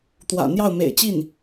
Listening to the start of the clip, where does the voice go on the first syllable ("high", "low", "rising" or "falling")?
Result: low